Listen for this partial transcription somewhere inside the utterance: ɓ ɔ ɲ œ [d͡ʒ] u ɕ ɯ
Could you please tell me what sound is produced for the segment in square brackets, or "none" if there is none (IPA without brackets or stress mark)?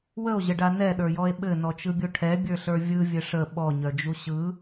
d͡ʒ